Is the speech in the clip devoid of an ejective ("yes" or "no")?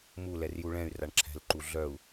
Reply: yes